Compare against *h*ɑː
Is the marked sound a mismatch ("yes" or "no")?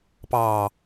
yes